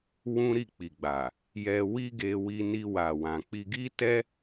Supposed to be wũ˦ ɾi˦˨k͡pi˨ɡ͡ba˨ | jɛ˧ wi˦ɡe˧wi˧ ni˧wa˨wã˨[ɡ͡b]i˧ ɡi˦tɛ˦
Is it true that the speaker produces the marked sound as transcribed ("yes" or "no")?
no